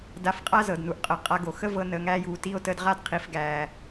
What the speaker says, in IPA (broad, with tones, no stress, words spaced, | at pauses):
da˧fqʼa˦ zɤ˨dnu˨ʔqʼə˨˦ qʼa˧ɡo˨ xə˦ vɤ˧nəː˨ŋæː˧juː˨ ti˧o̯təː˧d ʁa˦˨d qʰi˨fɡæː˨